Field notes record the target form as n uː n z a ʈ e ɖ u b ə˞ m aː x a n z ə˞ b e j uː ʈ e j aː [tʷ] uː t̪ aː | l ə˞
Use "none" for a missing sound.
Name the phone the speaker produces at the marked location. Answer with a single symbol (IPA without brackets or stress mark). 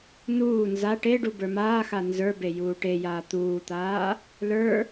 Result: t̪